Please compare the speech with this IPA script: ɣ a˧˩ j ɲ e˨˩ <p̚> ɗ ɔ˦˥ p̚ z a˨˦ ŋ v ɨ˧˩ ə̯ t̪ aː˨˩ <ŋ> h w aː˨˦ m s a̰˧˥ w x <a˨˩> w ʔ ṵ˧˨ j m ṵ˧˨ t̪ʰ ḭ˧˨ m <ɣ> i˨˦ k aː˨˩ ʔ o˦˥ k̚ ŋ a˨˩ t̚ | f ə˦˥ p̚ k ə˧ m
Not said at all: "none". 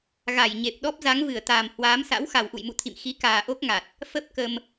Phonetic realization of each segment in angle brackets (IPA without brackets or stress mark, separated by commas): p̚, m, a˨˩, x